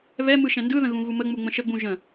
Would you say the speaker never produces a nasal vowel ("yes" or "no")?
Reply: no